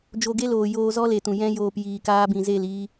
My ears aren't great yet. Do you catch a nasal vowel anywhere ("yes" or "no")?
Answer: yes